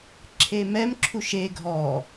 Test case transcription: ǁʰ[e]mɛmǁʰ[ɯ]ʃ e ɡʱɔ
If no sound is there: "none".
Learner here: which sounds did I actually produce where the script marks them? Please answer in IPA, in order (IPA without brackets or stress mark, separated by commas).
e, u